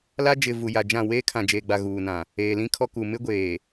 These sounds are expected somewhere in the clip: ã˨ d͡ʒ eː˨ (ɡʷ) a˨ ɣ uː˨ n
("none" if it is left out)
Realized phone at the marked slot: ɡ͡b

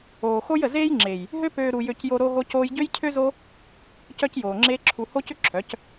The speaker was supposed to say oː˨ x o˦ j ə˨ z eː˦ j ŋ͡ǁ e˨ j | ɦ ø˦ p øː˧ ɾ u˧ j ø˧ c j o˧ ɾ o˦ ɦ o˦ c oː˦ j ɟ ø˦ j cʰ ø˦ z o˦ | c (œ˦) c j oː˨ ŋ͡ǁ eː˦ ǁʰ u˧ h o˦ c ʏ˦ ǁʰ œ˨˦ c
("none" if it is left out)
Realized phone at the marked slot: œ˦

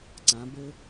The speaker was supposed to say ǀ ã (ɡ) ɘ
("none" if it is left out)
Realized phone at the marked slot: b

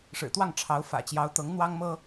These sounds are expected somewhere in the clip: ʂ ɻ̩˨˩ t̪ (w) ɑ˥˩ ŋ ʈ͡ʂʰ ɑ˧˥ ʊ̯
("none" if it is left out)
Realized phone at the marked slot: w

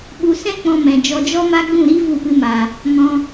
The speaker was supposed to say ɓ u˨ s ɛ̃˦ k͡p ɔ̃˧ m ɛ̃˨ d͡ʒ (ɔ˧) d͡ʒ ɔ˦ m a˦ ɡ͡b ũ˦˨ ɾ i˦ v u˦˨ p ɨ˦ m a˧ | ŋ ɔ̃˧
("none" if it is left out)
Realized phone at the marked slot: ɔ˧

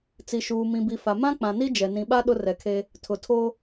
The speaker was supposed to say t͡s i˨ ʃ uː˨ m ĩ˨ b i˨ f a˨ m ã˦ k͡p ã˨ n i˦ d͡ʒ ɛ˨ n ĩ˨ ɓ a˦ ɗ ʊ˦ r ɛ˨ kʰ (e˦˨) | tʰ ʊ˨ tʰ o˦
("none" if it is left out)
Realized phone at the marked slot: e˦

